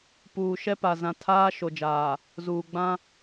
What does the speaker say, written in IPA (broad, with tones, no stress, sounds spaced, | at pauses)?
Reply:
p uː˨ ʃ ɛ˦ p a˨ z ã˨ tʰ aː˦ ʃ o˨ d͡ʒ aː˨ | z uː˨ ɡ͡b ã˦